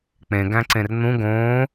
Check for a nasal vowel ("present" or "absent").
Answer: present